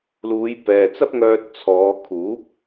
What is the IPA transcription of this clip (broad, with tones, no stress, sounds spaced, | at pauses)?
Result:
l uː˨˧ j p ɛː˨ t͡s ɐ˥ p̚ ŋ œː˧ t̚ t͡sʰ ɔː˨˧ kʰ uː˨˥ p̚